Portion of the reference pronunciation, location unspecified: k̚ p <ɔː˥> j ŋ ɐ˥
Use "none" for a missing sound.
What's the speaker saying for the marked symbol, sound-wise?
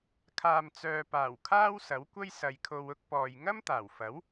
ɔː˨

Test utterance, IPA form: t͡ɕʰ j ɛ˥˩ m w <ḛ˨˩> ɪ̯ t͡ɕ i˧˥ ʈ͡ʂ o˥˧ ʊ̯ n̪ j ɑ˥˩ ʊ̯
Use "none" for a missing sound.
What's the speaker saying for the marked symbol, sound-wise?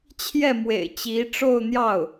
ḛ˨˩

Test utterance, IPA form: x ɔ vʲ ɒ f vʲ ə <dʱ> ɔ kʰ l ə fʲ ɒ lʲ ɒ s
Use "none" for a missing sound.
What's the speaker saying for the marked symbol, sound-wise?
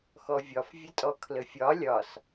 tʼ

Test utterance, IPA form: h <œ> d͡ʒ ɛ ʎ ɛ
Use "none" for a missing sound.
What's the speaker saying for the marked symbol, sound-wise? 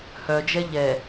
œ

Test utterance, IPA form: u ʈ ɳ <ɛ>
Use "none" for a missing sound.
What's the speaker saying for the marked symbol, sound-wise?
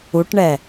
ɛ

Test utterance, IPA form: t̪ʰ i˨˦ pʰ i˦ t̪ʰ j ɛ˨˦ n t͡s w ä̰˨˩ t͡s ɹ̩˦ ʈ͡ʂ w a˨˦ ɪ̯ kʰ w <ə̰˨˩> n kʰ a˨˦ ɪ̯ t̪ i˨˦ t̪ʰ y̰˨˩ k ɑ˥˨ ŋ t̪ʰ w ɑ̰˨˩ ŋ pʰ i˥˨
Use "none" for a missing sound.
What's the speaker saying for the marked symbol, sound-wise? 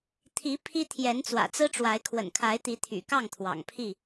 ə̰˨˩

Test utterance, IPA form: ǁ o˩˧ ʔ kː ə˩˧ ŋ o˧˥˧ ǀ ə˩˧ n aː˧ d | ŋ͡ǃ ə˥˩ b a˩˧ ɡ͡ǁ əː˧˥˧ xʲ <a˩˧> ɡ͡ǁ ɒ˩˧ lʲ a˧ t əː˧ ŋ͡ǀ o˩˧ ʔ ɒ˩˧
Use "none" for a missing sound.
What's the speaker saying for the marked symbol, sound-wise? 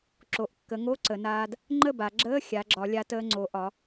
a˩˧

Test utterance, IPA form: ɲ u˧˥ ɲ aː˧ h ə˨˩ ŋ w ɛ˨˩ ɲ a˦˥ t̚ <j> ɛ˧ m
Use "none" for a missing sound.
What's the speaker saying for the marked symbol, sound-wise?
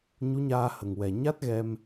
ɣ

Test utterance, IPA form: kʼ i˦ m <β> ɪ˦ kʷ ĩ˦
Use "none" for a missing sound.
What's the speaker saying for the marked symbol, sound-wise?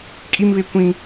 β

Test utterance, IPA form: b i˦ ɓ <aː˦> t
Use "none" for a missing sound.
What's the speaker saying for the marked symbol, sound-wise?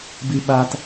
aː˦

